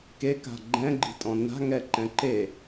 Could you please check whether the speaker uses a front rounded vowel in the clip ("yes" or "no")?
no